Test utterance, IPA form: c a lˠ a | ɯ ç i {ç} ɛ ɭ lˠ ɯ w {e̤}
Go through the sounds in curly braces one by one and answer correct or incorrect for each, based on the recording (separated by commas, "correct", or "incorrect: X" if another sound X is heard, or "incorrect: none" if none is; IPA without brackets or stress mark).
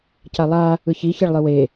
correct, incorrect: e